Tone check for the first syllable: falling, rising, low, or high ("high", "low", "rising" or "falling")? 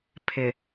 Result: low